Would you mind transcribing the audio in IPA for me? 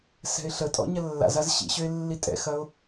s ɛ̤ ɪ̯ ɬ ə tʼ ɔ̰ ɲ ɐ lː a̰ z a z ɕ ḭ ɕ ø ɪ̯ lː i tʼ ɛ̰ x ɐ ʊ̯

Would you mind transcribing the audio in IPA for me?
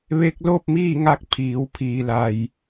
ʋ e˧ k̚ l oː˥˨ p̚ m iː˥˨ ŋ a˧ k̚ pʰ iː˩˧ w pʰ iː˩ l a˩ j

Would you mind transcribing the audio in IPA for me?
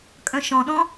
kʼ œ̃ ʃ ɔ̃ ɗ ɔ̃

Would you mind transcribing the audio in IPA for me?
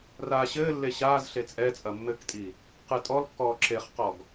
r aː ɕ ɘː lː e ɕ aː z ɬ e t͡sʼ ɛ t͡sʼ ɐ mː ɘ k tʼ i | q ɨ tʼ ɔ l kː ɔː ǁ e χ q ɔ ɡ

